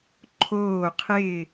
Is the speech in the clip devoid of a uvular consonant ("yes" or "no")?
no